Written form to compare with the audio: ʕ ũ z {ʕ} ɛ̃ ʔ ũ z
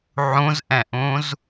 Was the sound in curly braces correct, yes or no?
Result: no